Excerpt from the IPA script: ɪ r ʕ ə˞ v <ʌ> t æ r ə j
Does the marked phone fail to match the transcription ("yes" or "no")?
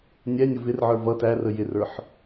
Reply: no